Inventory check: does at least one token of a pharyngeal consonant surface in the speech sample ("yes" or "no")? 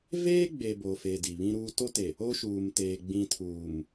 no